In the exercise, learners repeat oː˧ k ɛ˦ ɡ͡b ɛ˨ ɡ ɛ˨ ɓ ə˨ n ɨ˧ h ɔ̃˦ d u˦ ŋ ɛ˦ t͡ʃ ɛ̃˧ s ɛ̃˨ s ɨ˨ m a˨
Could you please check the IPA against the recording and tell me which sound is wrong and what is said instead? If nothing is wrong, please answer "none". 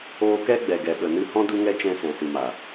none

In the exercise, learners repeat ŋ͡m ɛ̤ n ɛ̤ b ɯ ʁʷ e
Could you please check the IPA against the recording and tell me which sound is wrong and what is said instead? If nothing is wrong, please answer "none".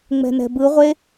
none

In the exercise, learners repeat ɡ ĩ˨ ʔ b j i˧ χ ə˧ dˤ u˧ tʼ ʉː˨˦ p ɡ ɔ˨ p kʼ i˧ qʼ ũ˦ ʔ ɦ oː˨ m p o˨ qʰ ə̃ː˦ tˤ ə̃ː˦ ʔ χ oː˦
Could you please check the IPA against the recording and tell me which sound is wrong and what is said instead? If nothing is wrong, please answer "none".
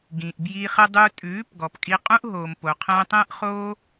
none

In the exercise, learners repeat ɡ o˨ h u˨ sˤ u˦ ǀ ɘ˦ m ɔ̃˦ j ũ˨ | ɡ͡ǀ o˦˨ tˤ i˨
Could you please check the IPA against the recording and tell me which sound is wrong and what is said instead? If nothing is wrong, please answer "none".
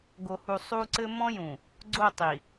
none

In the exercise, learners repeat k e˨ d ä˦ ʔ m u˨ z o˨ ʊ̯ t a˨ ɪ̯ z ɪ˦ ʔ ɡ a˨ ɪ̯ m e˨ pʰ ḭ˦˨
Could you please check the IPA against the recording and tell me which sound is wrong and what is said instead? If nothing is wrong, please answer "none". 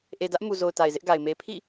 k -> ʔ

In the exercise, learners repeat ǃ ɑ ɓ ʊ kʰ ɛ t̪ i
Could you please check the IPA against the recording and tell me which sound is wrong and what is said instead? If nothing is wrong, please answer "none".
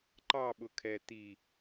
none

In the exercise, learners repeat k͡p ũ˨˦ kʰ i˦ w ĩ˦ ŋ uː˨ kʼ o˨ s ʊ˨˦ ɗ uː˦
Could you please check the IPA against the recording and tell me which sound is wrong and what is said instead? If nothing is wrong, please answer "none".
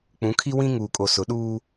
none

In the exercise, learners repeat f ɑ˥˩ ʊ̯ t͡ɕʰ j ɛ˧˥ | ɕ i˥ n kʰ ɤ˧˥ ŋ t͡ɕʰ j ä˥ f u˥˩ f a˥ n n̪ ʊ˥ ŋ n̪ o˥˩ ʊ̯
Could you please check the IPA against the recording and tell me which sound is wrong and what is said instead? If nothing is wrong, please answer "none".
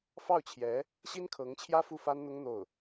none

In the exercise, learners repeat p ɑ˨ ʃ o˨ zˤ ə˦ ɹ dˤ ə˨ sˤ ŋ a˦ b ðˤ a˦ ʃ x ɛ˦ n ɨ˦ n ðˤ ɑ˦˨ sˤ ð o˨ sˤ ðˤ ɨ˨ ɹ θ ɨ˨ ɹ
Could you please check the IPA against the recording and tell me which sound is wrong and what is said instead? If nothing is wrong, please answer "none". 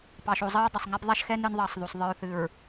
none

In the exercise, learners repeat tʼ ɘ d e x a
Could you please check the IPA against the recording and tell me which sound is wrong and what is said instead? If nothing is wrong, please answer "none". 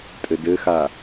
e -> ɘ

